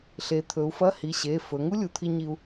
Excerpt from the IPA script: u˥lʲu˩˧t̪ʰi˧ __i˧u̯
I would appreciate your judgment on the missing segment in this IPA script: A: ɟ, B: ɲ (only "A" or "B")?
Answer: B